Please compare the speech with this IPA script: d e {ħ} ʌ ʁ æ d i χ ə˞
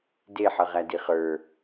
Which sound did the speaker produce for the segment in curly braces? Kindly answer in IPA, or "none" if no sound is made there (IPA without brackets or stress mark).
ħ